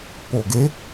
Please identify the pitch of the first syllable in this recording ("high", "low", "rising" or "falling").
low